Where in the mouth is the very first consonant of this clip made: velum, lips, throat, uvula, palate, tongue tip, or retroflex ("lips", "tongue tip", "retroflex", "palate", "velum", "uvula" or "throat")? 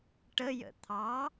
retroflex